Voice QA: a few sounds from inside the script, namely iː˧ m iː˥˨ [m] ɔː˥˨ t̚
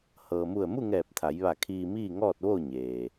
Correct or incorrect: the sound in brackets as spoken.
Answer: incorrect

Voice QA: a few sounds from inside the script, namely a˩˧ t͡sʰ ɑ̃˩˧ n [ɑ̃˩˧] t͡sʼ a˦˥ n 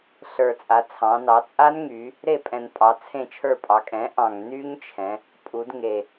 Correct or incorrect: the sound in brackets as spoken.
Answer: incorrect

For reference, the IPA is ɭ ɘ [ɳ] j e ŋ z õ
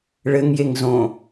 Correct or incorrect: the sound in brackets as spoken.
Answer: incorrect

